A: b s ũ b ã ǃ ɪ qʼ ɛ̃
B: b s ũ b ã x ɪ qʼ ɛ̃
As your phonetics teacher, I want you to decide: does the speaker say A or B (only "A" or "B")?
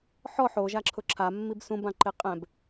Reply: A